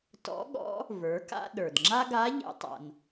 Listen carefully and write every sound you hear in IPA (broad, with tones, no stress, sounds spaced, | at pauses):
t ɔ̰˧˥ ɠ ɔ̰˧˥ | v ə˞˩˧ k a̰˧ ɗ ə˞˩ d ŋ͡ǁ a˥ ɡ a˧˥ ʎ ɛ̰˧ tˤ a̰˩ n